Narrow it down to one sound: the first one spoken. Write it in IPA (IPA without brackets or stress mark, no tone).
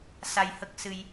s